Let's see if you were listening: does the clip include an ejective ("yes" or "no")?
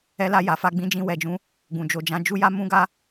no